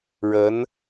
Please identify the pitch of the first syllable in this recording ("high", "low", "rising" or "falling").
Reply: rising